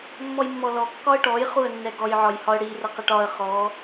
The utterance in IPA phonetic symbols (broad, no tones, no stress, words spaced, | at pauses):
mːɔjmːɔlɔ kːɒə̯ʈɔj χuə̯nːɛɡɔj ʕɒjhɒə̯ɽi rəqəʈɒə̯ χɔ